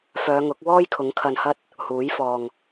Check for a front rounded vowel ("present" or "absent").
present